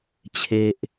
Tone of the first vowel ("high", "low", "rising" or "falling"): high